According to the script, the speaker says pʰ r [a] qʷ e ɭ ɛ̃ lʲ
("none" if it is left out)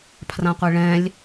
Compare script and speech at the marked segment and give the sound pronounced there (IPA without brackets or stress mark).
ã